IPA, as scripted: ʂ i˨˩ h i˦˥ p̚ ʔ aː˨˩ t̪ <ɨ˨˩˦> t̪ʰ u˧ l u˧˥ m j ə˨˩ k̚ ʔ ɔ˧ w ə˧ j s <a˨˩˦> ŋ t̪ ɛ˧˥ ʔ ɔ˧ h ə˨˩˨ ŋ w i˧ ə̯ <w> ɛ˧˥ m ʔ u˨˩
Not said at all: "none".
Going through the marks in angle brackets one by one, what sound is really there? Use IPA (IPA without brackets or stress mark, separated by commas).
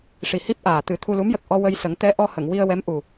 ɨ˨˩˦, ə˨˩˦, w